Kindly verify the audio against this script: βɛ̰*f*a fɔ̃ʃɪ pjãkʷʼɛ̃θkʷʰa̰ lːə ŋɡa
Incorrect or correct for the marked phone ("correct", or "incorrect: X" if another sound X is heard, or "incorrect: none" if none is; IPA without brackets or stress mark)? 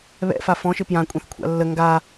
correct